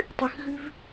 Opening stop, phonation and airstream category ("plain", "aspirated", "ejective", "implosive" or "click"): plain